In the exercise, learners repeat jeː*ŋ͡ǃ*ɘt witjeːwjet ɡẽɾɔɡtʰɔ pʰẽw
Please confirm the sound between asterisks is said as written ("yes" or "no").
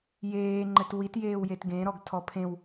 yes